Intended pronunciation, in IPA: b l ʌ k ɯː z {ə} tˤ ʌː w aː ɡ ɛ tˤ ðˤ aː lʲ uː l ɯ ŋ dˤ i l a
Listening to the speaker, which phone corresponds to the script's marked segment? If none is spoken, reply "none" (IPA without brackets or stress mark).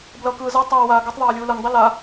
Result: ʌ